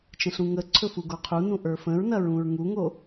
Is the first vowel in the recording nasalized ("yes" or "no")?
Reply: yes